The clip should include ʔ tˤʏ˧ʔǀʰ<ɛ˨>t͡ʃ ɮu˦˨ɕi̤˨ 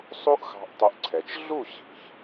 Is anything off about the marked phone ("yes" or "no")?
no